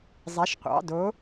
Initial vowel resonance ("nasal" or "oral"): oral